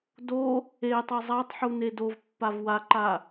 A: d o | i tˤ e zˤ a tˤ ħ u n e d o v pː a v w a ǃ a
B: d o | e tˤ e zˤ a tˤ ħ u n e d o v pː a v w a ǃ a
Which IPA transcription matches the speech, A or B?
B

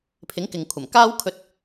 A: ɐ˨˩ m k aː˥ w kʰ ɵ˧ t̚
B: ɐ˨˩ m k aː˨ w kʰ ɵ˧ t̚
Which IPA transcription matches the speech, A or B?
A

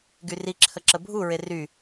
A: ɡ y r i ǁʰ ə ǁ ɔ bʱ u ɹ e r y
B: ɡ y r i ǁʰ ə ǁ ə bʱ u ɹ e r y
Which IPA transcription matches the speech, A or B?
B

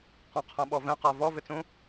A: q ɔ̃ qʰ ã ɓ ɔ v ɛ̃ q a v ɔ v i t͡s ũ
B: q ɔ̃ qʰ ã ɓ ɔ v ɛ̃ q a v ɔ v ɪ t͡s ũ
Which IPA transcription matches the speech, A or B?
B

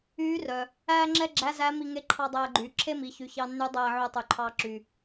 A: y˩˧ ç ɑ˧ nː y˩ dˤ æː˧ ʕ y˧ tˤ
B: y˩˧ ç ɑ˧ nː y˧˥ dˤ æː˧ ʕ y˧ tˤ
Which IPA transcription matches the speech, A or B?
B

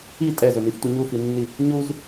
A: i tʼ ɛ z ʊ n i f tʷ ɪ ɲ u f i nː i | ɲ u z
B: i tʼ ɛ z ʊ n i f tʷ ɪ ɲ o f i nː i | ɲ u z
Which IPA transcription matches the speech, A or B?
A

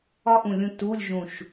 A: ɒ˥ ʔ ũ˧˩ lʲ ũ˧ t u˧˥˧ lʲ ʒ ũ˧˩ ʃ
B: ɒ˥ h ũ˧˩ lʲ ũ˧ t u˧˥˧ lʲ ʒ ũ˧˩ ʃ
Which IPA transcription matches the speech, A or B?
A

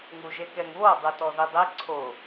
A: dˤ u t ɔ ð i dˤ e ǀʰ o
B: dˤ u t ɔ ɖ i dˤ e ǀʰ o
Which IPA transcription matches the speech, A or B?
A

